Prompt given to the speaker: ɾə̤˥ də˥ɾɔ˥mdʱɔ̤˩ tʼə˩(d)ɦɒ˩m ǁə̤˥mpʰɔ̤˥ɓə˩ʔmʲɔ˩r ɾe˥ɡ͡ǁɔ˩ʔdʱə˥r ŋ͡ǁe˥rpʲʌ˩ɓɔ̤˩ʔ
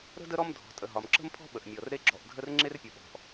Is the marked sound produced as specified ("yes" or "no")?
no